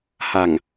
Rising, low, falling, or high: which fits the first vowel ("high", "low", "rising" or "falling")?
low